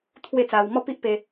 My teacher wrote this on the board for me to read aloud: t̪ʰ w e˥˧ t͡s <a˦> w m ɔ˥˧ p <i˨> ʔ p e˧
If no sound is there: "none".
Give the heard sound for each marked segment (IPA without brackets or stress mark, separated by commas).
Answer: a˧, i˦